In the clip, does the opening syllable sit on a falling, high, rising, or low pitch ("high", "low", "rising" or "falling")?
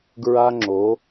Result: high